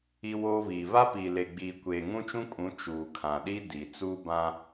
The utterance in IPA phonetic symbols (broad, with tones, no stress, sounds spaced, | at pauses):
i˦ w oː˦ β iː˨ β a˦ p iː˨ l e˨ ɡ͡b iː˨ kʷ eː˨ ŋ ũ˦ t͡ʃ ũ˦ kʼ ũ˨˦ t͡ʃ uː˨ kʰ ã˨ ɗ i˦ d i˨ t͡s uː˦ b ã˦